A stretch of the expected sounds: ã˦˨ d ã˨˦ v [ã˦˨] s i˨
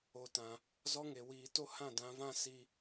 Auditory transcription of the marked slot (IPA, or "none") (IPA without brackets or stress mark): ã˦˨